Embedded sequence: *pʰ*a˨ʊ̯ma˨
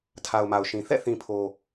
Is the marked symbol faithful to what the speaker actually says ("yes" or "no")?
no